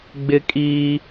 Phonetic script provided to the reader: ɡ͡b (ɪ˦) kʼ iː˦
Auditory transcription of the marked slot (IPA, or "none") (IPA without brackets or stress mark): ɪ˦